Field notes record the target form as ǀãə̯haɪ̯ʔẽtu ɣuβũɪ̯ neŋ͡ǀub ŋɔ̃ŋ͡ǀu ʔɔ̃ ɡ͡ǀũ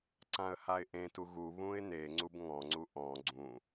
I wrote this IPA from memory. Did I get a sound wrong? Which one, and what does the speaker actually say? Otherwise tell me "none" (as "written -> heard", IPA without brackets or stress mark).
none